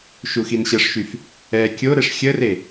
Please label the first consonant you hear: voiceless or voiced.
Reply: voiceless